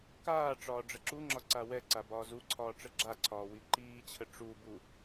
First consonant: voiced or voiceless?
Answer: voiceless